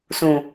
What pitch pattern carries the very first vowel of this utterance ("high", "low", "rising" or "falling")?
low